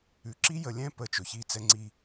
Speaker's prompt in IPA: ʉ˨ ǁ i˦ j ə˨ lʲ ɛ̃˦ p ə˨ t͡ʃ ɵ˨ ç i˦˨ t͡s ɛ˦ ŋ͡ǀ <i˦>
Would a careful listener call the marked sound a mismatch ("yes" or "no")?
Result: no